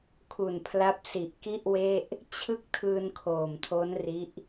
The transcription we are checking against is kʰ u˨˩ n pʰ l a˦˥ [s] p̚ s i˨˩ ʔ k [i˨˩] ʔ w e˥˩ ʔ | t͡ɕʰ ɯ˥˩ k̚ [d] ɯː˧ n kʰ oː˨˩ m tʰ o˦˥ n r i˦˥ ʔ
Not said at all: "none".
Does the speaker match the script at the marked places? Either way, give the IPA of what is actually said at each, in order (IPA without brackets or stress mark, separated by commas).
none, i˥˩, tʰ